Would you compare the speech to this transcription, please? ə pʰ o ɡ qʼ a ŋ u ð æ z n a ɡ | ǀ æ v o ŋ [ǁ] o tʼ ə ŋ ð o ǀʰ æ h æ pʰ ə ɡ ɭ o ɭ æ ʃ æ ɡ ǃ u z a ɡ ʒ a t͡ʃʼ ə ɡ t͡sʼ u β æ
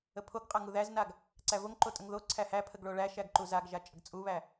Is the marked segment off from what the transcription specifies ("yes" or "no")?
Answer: yes